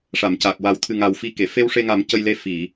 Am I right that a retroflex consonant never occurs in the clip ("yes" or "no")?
no